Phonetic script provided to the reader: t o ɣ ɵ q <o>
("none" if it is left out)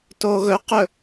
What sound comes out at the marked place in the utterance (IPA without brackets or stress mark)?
ɵ